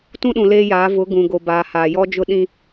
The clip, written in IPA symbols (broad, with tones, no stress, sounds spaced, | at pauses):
t ũ˦ ɗ ũ˨ l eː˦ j aː˨˦ v ʊ˨˦ ɡ ũ˨ ɡ o˨ b aː˨ h aː˨ j ɔ˦ d͡ʒ ʊ˦ ɗ ĩ˦